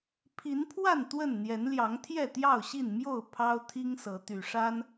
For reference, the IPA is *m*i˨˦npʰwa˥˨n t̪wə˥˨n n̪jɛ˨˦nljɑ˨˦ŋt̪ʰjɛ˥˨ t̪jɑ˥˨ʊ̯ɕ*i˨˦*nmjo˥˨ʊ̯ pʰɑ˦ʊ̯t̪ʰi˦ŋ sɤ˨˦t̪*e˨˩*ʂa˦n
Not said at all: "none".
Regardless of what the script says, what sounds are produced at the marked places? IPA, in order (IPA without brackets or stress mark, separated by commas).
pʰ, i˥˨, y˨˩